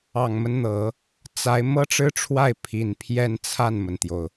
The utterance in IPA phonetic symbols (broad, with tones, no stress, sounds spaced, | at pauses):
ɑ˨˩ ŋ m ə˦ n n̪ ɤ˨˩˦ | t͡s a˧˥ ɪ̯ m ɤ˥ ʈ͡ʂ ɻ̩˥ ʈ͡ʂʰ w a˥˩ ɪ̯ pʰ i˨˩ n pʰ j ɛ˥˧ n t͡sʰ a˥˩ n m ə˩ n t̪ j o˩ ʊ̯